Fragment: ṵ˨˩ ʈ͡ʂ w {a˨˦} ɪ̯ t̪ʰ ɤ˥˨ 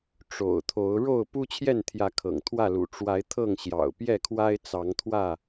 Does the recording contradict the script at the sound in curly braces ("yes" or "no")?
no